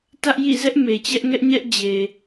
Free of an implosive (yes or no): yes